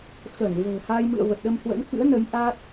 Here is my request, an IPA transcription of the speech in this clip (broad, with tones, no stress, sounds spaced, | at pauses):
x ə˧˩ n v ə̤ː˨˩ h a˧ j m ɨ̰˧˨ ə̯ v ə˨˩ t̚ ɗ ə˧ m h w ə̰˧˥ n k ɨ̰˧˥ ə̯ n ə˨˦ j ʔ a˦˥ t̚